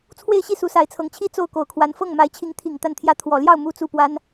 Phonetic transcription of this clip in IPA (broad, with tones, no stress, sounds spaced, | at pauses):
t͡sʰ w e˥˧ ɪ̯ ɕ i˥˩ s u˧˥ s a˧˥ ɪ̯ t͡sʰ ɤ˧˥ ŋ t͡ɕʰ i˥ t͡s o˥˩ ʊ̯ k o˨˩ ʊ̯ kʰ w a˧˥ n f ɤ˥˩ ŋ m a˧˥ ɪ̯ t͡ɕʰ i˧˥ ŋ t̪ʰ i˨˩ ŋ t̪ a˥˩ n t̪ʰ j ä˥ t̪ʰ w ɔ˨˩ l j ɑ˥˩ ʊ̯ m u˥ t͡s u˥˩ p w a˥ n